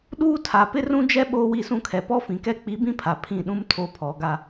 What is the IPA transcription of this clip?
ɗ uː˦ tʰ a˨ p ɪ˦ r ũ˦ d͡ʒ ɛ˦ ɓ oː˦ w i˦˨ s ũ˦ kʰ ɛ˨ p ɔ˦ f ĩ˨ k ɛ˦ k͡p i˨˦ b ĩ˦ pʰ a˨ pʰ ĩ˦˨ ɗ ũ˦ m tʰ o˦ pʰ ɔ˨˦ ɡ a˦

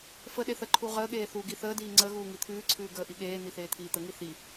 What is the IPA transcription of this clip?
f ə ɗ e θ ə ǃʰ u ʁ əː ɠ eː θ uː ɡ i θ əː d iː ŋ͡ǀ ə ɣ uː ŋ i t̪ʰ ʉː ǀʰ ʉː ɡ əː ʔ i ɠ eː n̪ i θ eː t̪ʰ iː t̪ ə ŋ i θ i

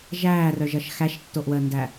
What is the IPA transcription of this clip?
ʒ æː r œ ʒ ʌ ʃ x æ ʃ tː o ʔ w əː n d æ

